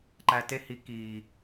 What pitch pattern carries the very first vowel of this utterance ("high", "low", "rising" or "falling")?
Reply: low